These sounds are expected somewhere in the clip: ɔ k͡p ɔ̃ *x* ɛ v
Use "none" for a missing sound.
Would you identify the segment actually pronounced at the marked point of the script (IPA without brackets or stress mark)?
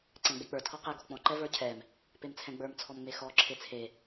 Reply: ǃ